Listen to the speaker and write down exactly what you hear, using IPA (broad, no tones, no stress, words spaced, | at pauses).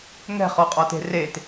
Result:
ŋɛ̤χɔqʼɔte̤ ret